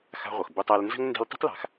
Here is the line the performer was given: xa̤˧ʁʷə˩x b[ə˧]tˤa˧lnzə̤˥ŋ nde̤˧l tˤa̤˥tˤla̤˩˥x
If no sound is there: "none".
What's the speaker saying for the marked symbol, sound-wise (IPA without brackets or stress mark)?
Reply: ʊ˧